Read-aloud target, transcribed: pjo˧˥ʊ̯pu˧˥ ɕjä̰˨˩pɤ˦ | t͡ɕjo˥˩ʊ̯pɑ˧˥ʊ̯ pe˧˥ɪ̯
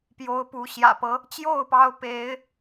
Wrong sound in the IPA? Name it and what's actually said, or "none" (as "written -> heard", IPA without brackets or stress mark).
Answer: none